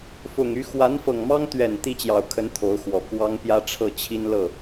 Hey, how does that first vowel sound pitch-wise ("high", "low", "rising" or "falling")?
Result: low